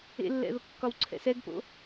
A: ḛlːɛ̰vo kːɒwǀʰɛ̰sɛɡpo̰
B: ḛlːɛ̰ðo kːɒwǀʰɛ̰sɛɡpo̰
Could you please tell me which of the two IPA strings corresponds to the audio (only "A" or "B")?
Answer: B